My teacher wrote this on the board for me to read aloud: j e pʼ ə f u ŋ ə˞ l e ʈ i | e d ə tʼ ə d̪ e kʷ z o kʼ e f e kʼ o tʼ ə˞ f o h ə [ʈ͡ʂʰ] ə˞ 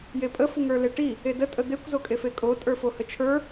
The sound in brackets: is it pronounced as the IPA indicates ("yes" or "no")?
no